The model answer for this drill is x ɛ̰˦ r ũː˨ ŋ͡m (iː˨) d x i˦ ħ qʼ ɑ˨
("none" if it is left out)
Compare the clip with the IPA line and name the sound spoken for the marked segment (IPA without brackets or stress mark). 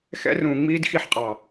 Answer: iː˦